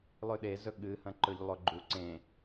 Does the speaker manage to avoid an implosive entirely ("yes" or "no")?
no